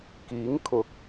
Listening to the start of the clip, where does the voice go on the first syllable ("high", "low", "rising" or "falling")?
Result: rising